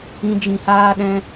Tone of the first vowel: high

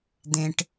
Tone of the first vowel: high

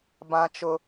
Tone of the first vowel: high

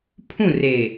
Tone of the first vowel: falling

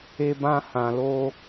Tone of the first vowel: high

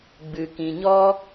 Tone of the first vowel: low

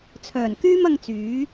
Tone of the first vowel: low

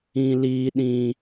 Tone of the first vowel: high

